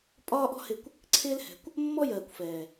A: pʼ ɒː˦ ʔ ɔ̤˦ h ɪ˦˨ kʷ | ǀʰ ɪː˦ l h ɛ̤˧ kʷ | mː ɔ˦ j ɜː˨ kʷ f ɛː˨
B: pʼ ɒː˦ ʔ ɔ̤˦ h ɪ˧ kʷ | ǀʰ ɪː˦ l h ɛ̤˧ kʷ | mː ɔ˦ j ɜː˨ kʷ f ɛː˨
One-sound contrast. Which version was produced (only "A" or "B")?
A